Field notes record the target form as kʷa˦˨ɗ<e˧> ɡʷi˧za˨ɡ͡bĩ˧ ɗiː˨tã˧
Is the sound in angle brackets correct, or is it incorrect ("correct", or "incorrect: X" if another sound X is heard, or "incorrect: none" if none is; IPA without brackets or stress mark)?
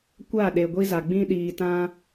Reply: incorrect: e˨